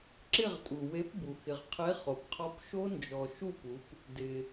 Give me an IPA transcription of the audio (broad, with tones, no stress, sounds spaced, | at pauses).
ǁ ɪ˦˨ ʁ tʼ u˩ w e˨˥ p b u˩ x ɪ˩ ʁ qʰ e˨˥ χ o˩ p qʰ ɔ˨˥ p ʃ o˦˥ n d͡ʒ ɔ˩ ʃ u˦˨ p u˩˧ p | d ɪ˩